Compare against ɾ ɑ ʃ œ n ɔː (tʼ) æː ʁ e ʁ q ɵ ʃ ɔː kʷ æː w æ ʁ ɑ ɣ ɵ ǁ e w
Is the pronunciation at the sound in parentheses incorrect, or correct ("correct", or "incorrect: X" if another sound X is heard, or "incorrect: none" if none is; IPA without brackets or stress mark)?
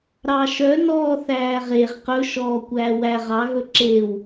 incorrect: θ